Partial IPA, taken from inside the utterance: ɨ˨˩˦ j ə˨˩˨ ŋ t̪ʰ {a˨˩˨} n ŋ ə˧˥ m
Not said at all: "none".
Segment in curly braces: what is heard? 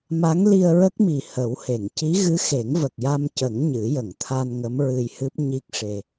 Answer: a˧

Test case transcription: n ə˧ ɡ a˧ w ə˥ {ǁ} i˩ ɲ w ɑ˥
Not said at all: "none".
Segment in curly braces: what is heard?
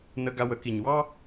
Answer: k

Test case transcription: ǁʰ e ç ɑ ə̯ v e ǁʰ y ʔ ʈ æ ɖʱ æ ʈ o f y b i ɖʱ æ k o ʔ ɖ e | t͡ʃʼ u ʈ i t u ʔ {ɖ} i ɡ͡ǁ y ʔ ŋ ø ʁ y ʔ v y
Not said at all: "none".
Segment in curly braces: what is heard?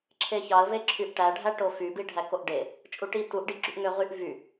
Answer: ɖ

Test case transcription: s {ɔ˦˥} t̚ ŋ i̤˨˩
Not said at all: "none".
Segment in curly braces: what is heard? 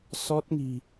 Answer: ɔ˦˥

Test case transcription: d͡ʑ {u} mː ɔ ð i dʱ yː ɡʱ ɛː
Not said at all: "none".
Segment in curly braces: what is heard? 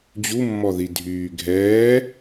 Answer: u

